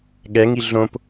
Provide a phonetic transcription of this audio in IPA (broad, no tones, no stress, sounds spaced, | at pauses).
ɠ ɛ ŋ i ɮ õ p